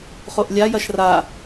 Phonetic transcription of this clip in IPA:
χ o ʔ lʲ a j ɐ ʃ r a

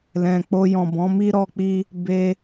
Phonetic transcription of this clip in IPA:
l ɛ̃˨ k͡p o˧ j ɔ̃˨ b ɔ̃˨˦ m i˦ ɾ ɔ˦ k͡p i˦ | b e˧

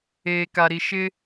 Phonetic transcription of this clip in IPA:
eː˨ k a˨ ɾ i˨ ʃ ɪ˦

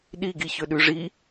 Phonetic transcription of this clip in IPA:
ɗ i ɡ i ç ɵ ɗ ʉ ʐ i

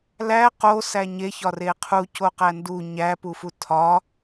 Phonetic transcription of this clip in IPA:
l æ q o s æ ɲ e ç ɒ r e qʰ u c o q æ n d u ɲ æ p u f u tʰ ɒ

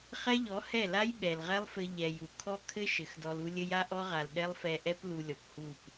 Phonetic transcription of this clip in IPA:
χ ɛ˦ ʎ ɔ˨˦ h ɛ˦˨ l a˦ j ɓ ɛ˨ l ʁ ɛ˦ lˠ f ɘ˧ ʎ ɛ˨ j u˨ kʰ ɔ˦ kʰ ɘ˦ ʃ ɘ˨˦ x d ɔ˧ l u˦ lʲ ɘ˦ j a˦ ʔ ɔ˦ ʁ a˨ l ɗ ɛ˦ lˠ f ɛ˧ ʔ ɛ˦ p l u˧ lʲ ɔ˨ p h u˦˨ p

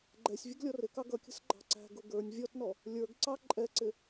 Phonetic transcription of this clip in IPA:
ɡ͡ǃ ɛ sʲ vʲ ə ɡ lʲ ɔ r ɪ k ɑ ɡ ʌ kʲ ə̤ s ɡ͡ǃ ɑ̤ ǀ æ̤ ɡ ʊ ɡ ə˞ nʲ vʲ ɔ t n ɔ | lʲ ə˞ ɡ ǀ ɑ ǃʼ ɛ ǀ ɪ

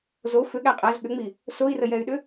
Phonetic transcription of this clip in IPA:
z o f ʏ ɠ æ qʼ æ z ɠ ʏ ŋ͡m i | s o i̯ r ə j ɛ y̯ ɗ ʏ

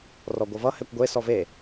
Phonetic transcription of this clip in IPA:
r ɔ ɡʷ ʌ v ʌ h ɛ kʷ ɡʷ e s ɔ v e

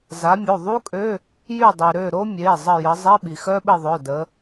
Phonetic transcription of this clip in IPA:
z a˨˦ mʲ o˩˧˩ ðˤ u˥ kʼ ø˧˥˧ | j y˦˨ dˤ y˩ ɾ ø˦˨ ɾ o˥ mʲ e˩˧˩ zˤ ə˦˨ j ə˨˦ zˤ i˧˥˧ ɓ i˩ x œ˥ ɓ ɪ˦˨ ðˤ œ˩˧˩ d ə˨˦

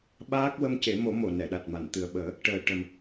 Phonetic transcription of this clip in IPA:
ɓ aː˦˥ k̚ w ə˧ m c e˨˩˦ m o˨˩˦ m o˨˩˨ n ɛ˨˩˨ ɗ a˨˩ t̚ m a˨˩˨ n t̪ ɨ˨˩ ə̯ ɓ əː˨˩˦ | ʈ əː˨˩ ʈ ə˨˩ m

